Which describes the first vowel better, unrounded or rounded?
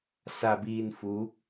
unrounded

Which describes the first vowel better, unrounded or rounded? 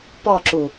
rounded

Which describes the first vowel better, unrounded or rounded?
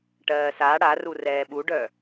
unrounded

